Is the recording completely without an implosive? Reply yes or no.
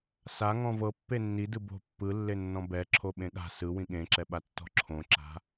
no